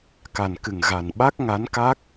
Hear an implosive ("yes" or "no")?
yes